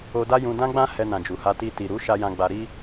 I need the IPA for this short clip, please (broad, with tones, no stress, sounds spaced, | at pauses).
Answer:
o˧ d a˦ j ũ˧ d ã˦ ɡ͡b ã˦ h ɛ˧ n ã˨ d͡ʒ u˨ h a˧ t i˧ t i˨ ɾ u˨˦ ʃ a˧ j ã˧ ɡ͡b a˧ ɾ i˦